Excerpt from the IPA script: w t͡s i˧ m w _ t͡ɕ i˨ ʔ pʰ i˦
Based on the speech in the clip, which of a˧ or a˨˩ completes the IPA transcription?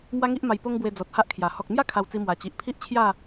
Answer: a˨˩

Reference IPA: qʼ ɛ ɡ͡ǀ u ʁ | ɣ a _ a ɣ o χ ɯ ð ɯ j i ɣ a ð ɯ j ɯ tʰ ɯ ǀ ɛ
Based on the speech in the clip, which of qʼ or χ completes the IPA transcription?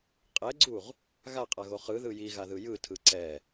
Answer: qʼ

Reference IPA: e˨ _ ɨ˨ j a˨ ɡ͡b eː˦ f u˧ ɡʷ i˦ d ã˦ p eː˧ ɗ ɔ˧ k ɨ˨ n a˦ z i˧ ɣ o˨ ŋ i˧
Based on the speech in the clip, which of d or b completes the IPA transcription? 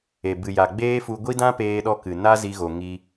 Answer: b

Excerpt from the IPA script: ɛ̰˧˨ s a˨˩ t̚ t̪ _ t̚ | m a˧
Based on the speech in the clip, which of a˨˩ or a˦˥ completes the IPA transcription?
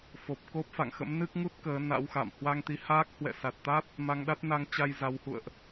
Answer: a˦˥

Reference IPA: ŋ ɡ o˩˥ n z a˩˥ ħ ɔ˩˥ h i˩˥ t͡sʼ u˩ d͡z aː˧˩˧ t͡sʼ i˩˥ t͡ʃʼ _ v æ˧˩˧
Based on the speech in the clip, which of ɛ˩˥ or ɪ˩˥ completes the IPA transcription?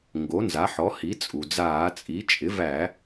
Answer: ɪ˩˥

